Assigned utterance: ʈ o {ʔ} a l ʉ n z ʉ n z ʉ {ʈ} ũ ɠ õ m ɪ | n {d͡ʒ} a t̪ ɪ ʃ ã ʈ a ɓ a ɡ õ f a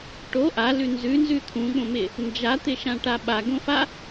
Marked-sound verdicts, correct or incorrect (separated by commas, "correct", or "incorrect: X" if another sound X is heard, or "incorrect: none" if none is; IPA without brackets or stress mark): correct, incorrect: t̪ʰ, correct